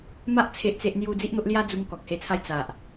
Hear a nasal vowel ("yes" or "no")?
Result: no